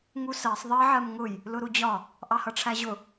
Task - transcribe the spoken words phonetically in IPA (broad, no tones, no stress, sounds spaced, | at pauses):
ŋ u s ɜ sˤ ðˤ ɜ ʕ ɜ m ŋ ʊ j | l ʊ ɾ u d͡ʑ ɒ | ʔ ɑ h ʌ ʈ͡ʂʰ æ ʑ ʊ